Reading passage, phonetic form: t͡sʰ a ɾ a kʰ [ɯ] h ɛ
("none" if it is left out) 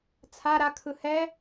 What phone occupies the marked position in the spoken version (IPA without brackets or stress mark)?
ɯ